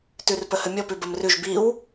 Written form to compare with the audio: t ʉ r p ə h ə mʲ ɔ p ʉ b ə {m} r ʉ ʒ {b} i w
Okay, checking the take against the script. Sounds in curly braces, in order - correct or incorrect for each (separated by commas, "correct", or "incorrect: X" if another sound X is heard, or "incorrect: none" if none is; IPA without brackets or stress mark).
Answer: correct, correct